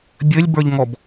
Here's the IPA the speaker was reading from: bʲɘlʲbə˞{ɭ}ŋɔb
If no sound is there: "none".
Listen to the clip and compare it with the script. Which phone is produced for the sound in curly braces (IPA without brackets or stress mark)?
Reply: ʎ